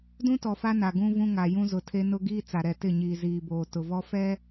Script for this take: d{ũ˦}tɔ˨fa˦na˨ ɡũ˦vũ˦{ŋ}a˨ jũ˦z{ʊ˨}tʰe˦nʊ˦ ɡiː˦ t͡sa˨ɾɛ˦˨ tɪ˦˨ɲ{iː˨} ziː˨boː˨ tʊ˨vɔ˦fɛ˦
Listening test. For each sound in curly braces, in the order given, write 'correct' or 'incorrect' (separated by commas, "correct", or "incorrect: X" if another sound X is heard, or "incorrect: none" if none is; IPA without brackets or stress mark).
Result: correct, correct, correct, correct